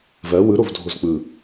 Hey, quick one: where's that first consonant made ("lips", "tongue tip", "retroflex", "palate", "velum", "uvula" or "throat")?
lips